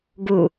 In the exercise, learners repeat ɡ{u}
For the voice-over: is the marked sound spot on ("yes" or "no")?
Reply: yes